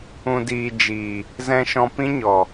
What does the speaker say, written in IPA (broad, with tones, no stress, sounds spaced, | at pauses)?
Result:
ũ˨ d iː˨ d͡ʒ iː˨ | z ɛ̃˧ ʃ ɔ̃˧ p ĩ˦ ɲ ɔ˨